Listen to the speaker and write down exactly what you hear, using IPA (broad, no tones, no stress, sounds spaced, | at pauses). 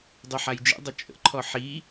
dˤ y ħ a j d͡ʒ ḭ dˤ ʊ t͡ʃʼ ə̰ ǃʰ ɔ ħ i